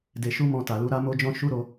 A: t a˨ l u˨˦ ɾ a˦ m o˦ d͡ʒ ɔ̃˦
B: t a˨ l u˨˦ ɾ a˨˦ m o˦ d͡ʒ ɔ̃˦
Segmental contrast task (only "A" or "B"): A